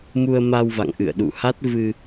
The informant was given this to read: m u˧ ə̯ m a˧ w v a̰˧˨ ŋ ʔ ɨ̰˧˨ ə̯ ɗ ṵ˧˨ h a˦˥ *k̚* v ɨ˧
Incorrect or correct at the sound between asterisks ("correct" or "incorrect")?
incorrect